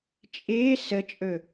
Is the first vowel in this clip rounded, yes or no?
no